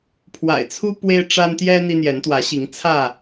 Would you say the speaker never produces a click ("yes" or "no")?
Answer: yes